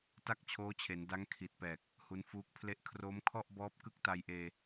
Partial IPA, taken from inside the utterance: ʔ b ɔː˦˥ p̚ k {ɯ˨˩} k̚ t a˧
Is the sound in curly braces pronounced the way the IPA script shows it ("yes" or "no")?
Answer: no